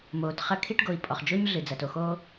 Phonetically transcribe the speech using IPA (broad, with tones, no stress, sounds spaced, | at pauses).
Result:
m oː˨ t χ ɐ˦ kʰ i˦ ʈ ɡ o˨ i̯ pʼ ɔ˨ χ d͡ʒ o˦ ɲ ɮ ɨ˨ d͡z ɐ˨ t o˨ x oː˦